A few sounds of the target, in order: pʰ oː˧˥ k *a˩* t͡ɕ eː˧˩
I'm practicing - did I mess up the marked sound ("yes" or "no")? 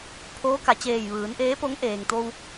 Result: no